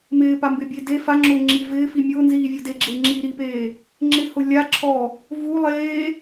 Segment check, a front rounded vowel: absent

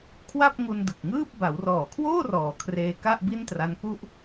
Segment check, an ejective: absent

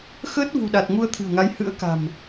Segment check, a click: absent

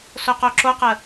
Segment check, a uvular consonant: present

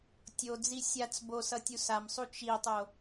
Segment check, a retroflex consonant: absent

